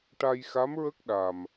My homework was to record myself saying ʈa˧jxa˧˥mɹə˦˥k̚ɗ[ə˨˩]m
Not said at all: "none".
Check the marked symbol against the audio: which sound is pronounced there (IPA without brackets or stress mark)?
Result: a˨˩